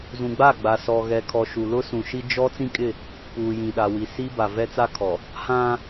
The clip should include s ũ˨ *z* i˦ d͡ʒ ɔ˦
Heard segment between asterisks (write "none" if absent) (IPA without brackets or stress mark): ʃ